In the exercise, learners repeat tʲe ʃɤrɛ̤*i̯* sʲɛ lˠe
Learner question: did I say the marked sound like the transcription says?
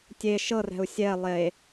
no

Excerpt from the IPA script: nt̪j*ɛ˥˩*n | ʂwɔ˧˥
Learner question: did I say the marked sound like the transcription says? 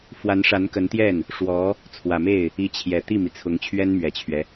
yes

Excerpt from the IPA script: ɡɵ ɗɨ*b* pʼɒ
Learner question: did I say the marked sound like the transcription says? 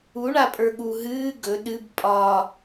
yes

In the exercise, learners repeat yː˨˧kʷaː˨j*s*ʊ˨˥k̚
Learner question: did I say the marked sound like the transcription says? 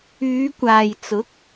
no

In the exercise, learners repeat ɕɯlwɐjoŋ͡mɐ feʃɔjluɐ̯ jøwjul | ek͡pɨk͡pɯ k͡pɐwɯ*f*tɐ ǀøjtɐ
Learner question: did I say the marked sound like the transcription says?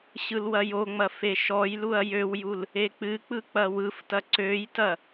yes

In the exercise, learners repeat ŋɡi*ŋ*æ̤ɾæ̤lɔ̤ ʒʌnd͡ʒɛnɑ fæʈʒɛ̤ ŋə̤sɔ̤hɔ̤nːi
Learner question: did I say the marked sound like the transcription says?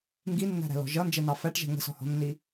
no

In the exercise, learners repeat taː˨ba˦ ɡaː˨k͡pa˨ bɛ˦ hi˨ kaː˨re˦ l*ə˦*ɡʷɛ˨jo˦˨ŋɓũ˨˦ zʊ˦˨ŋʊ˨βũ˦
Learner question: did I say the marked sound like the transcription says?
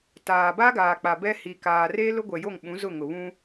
no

